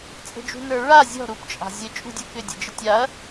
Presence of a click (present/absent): absent